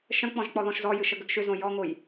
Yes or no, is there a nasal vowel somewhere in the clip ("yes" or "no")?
yes